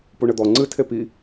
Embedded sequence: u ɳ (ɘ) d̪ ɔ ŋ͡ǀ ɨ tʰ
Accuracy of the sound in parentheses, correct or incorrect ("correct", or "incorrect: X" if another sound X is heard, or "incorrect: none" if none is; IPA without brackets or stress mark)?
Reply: correct